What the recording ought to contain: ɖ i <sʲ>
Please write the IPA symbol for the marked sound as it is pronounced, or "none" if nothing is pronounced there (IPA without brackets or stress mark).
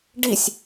sʲ